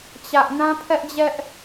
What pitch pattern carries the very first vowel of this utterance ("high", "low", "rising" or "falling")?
high